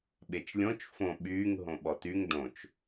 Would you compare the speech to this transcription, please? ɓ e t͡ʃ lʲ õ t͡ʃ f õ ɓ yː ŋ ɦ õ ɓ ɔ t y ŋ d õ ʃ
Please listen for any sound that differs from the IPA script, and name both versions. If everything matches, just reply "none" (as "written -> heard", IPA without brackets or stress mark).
ʃ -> t͡ʃ